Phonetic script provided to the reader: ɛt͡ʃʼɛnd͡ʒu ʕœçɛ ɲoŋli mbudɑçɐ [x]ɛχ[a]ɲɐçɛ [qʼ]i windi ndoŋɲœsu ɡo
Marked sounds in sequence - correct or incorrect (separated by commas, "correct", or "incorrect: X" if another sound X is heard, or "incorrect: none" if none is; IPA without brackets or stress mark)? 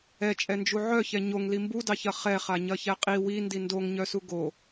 incorrect: χ, correct, correct